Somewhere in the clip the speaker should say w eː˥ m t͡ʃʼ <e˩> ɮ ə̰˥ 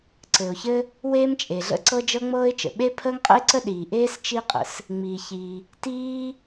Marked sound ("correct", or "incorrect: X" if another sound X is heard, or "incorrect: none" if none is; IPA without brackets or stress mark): correct